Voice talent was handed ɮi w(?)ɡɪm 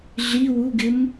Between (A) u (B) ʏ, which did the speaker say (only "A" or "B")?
A